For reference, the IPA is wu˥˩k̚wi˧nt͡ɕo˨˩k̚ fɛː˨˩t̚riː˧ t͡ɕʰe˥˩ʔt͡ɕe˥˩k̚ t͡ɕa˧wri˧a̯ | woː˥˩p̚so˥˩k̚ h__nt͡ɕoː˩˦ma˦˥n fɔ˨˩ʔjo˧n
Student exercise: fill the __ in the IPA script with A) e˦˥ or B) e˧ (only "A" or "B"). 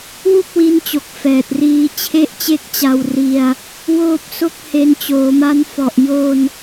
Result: B